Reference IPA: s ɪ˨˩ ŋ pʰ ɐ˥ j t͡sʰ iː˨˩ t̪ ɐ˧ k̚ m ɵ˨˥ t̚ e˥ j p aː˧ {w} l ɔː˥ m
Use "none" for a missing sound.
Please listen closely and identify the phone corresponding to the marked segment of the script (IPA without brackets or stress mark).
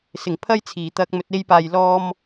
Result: j